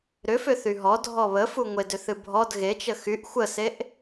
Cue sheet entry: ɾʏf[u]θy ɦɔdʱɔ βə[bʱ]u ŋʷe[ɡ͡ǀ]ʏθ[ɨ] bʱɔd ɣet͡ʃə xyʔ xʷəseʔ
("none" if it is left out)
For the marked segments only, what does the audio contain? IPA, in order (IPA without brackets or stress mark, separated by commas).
ʏ, f, d, ɨ